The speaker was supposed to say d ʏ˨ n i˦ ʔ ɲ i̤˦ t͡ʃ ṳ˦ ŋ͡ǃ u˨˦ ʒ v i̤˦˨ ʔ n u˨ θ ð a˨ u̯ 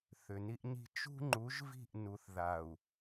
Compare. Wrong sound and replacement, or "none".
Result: d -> θ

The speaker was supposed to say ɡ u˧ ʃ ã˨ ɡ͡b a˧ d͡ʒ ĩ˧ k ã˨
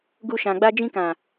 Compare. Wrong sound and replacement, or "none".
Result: none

